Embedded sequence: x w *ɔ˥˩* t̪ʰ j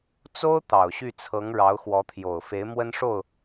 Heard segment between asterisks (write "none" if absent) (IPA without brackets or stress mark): ɔ˧˥